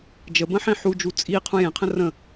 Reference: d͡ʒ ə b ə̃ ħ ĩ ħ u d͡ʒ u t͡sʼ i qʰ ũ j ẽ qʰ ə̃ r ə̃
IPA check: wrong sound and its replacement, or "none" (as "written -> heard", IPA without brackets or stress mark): none